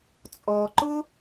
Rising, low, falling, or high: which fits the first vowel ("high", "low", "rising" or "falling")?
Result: low